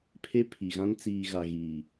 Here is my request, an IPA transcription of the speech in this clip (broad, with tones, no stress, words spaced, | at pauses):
pʰe˦pʰi˨ɣã˦n t͡siː˨ɣa˨ɣiː˨